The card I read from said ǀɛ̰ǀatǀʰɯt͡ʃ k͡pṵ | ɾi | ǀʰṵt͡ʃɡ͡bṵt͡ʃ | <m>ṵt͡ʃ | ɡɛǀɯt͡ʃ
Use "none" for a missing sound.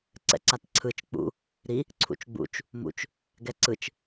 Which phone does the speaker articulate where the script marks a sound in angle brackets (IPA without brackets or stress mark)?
m